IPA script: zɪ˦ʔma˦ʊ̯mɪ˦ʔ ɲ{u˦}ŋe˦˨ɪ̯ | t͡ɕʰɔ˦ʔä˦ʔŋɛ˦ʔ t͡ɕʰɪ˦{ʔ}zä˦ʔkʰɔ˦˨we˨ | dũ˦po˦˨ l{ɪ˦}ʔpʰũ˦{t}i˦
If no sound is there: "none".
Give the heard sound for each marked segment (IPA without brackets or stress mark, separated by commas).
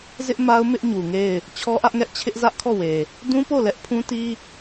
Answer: u˨, ʔ, ɛ˦, t